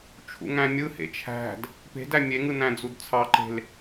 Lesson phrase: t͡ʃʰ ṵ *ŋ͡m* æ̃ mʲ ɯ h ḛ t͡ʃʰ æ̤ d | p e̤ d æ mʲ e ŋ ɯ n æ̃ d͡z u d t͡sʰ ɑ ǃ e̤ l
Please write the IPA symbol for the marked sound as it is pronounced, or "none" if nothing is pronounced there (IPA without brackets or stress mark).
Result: ŋ